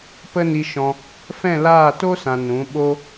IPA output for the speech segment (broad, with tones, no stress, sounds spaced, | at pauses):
p ə˦ n i˧ ʃ ɔ̃˧ | f ɛ̃˦˨ l aː˦˨ t o˦ s ã˨ n ũ˨˦ ɓ o˦